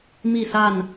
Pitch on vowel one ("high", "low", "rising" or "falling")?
falling